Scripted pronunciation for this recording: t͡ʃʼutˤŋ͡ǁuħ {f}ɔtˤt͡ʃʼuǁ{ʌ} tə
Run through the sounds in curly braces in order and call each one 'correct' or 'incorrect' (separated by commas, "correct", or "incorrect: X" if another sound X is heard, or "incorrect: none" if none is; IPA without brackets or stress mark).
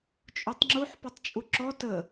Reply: incorrect: p, incorrect: ɔ